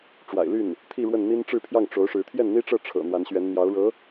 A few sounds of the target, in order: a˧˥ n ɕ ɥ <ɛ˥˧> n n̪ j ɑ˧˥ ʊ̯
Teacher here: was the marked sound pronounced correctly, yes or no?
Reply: no